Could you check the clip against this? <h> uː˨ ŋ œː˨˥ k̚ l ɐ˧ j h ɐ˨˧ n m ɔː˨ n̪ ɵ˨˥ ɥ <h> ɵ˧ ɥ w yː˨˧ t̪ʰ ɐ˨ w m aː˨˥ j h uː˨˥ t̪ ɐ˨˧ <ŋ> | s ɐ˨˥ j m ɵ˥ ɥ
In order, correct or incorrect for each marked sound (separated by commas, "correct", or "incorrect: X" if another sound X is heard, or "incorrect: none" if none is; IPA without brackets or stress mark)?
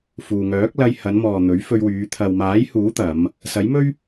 incorrect: f, incorrect: f, incorrect: m